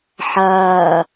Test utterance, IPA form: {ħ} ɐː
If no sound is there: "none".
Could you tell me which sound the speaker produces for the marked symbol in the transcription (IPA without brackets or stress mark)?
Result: ħ